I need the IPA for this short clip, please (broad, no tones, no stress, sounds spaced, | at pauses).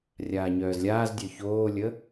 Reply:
rʲ aː ɲ œː z lʲ aː z dʲ œ ç oː lʲ ə